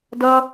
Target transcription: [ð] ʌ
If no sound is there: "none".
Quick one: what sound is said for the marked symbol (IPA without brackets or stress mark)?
d